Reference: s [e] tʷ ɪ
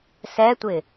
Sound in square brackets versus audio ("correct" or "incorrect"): incorrect